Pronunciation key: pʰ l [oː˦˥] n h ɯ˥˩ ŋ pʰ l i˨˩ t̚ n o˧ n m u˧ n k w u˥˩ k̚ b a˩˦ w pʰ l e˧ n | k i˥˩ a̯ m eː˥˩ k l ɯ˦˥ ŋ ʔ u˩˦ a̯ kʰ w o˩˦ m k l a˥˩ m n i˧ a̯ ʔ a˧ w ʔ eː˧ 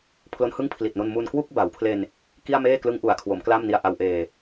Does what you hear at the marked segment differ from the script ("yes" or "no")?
yes